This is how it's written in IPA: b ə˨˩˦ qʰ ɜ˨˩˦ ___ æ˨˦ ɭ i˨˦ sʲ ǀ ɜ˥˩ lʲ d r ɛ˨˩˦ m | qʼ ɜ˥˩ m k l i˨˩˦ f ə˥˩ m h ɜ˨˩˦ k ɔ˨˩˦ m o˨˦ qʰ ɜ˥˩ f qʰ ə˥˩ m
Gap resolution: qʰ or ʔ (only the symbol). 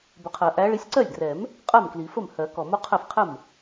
ʔ